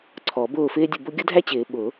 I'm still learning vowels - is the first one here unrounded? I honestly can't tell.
no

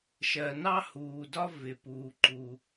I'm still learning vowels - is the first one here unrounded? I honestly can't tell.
yes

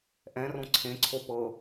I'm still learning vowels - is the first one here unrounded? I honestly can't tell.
yes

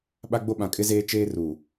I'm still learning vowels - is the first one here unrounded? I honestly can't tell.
yes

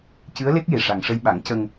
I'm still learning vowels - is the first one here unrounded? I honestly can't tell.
yes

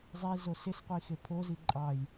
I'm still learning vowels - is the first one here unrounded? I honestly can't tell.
yes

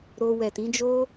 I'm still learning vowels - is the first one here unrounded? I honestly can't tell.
no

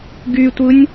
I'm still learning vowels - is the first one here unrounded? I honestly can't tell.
no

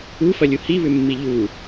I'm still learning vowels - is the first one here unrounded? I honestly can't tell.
no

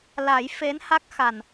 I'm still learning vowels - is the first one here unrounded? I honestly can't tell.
yes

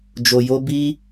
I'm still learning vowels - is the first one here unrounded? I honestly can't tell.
no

